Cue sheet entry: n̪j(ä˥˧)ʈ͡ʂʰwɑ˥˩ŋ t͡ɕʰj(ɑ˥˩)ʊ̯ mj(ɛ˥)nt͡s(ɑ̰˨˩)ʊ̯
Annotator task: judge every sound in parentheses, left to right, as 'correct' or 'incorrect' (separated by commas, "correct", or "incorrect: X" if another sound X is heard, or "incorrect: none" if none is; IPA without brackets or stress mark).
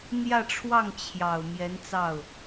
correct, incorrect: ɑ˨˩, incorrect: ɛ˧˥, incorrect: ɑ˥˩